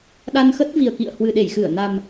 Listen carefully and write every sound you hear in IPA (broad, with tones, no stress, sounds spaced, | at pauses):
ɗ a˧ n x ə˦˥ t̚ v i˨˩ ə̯ k ḭ˧˨ ə̯ h w ɨ˨˩ ɗ e˧˩ j x ɨ˧˩ ə̯ n a˨˩ m